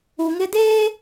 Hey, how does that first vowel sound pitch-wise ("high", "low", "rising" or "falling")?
low